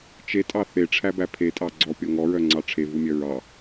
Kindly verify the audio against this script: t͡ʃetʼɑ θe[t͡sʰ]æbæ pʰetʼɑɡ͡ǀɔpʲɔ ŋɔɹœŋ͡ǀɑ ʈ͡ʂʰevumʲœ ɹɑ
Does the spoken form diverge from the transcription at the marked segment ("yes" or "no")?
yes